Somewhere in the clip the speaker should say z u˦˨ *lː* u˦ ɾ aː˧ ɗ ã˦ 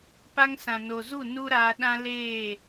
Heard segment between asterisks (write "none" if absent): n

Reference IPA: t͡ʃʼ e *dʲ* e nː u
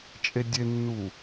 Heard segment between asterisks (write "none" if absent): dʲ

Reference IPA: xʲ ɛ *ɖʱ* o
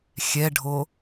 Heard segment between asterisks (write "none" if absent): ɖʱ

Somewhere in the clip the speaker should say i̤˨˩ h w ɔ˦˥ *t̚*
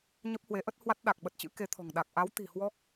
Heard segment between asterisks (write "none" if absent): k̚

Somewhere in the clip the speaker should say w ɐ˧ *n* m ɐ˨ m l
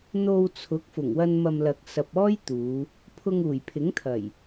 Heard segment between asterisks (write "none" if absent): n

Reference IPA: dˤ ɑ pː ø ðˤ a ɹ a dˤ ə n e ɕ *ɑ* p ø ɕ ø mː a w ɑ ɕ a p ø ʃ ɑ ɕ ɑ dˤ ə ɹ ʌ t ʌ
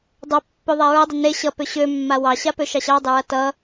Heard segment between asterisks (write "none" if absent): ʌ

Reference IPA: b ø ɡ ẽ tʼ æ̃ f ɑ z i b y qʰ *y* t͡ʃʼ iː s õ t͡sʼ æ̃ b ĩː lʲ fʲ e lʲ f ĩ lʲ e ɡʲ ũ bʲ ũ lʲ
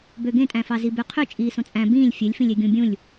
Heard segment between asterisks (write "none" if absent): y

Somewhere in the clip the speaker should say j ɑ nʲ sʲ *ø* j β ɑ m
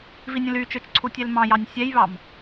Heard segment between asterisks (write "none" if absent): ɛ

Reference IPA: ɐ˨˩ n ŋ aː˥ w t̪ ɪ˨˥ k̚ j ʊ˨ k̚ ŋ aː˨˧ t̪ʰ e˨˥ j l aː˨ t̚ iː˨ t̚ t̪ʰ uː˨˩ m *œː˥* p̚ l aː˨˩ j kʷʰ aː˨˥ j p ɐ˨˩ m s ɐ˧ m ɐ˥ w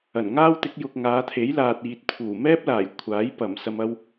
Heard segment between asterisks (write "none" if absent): ɛː˥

